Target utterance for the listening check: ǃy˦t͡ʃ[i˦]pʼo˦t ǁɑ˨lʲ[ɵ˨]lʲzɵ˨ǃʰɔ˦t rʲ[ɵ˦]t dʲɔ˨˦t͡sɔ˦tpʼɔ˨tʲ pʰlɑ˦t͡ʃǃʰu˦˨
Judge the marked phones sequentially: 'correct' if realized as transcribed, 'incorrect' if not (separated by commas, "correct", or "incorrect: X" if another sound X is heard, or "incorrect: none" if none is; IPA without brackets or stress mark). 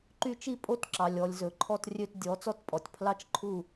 correct, incorrect: ɔ˨, incorrect: ø˦